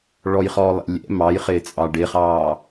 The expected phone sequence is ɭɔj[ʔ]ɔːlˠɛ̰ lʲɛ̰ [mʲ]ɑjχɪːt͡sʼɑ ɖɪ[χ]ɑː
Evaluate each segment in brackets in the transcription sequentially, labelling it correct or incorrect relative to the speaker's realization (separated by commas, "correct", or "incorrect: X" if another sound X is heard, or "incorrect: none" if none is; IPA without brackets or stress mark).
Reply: incorrect: χ, incorrect: m, correct